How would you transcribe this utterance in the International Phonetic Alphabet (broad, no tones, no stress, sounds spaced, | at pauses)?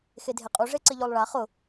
x e dʱ e qʼ u ʐ e ǀ ɪ ʎ o lˠ ɭ a χ ʊ